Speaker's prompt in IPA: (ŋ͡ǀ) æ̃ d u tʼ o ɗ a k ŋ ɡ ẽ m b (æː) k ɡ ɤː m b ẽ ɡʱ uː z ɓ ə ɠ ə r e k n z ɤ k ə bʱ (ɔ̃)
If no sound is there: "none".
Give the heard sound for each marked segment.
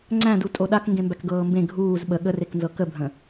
ŋ͡ǀ, æ, ə̃

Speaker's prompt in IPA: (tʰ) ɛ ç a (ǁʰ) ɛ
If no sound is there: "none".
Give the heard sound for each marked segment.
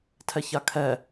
tʰ, kʰ

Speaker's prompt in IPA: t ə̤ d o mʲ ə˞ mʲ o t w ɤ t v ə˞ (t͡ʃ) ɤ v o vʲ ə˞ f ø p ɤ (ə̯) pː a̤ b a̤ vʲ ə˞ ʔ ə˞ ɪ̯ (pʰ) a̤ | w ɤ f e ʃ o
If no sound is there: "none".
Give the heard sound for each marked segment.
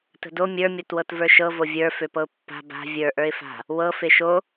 ʃ, ʊ̯, f

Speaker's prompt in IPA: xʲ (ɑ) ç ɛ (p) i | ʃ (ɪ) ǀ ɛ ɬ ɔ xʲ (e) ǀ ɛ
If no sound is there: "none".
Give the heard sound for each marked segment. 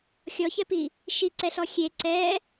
ɔ, p, i, e

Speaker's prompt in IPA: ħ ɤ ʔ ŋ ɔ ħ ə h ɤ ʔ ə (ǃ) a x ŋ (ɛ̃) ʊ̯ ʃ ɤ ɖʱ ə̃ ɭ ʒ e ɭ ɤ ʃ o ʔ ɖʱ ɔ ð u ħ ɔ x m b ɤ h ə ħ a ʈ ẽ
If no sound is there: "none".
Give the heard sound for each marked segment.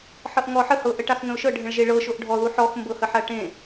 ʈ, ə̃

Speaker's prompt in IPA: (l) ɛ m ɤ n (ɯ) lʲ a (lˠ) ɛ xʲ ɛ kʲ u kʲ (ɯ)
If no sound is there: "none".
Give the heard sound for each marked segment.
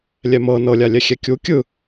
lʲ, ɤ, lʲ, ɯ

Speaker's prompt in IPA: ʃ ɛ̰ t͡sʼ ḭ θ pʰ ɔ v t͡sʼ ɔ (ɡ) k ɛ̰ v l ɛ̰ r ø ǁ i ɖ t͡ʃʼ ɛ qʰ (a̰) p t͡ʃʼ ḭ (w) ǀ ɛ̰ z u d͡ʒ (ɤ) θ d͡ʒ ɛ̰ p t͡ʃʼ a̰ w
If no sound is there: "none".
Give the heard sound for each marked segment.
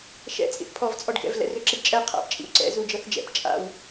ɖ, a̰, w, ɤ

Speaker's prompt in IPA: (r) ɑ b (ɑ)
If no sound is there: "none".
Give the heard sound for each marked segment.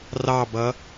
r, ʌ

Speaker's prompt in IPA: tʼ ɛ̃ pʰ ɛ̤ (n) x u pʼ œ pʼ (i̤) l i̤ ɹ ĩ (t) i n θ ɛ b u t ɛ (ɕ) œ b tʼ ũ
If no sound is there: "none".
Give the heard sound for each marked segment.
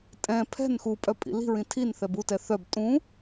n, ḭ, tʰ, θ

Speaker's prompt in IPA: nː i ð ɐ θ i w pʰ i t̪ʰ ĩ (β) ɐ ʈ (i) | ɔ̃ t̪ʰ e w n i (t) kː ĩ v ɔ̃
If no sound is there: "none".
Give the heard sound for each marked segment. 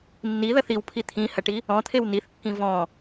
h, i, θ

